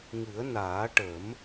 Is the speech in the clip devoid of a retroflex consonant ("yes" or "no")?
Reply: no